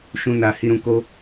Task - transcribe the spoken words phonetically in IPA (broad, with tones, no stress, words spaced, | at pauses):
ʃũ˧ na˧ hi˧ɾũ˧ ko˦